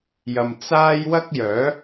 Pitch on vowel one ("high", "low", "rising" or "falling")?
low